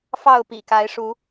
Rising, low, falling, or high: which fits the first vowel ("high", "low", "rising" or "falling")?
falling